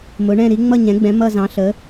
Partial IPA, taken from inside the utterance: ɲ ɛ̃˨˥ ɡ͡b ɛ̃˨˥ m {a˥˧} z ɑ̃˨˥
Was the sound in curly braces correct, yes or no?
no